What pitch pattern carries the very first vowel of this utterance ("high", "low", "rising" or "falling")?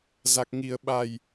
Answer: low